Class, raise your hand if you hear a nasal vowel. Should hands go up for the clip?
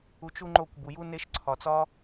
no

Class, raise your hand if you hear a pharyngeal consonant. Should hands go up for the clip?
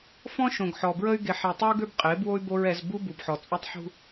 yes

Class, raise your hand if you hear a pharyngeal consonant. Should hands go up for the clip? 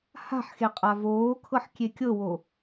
yes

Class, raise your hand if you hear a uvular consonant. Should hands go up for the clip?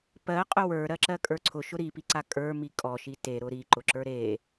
yes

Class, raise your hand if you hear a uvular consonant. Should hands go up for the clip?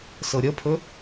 no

